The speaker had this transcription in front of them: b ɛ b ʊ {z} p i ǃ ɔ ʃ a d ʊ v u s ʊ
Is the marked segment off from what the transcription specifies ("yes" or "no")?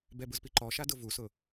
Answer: no